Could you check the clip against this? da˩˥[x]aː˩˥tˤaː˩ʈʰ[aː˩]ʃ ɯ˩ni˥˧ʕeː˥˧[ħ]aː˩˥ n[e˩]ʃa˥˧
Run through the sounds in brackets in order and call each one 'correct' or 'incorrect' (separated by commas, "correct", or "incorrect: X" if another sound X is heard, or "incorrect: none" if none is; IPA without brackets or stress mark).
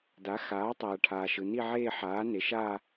correct, correct, correct, incorrect: e˩˥